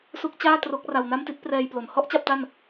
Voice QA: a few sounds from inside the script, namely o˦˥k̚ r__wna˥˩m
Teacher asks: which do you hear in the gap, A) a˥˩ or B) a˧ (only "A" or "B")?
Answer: B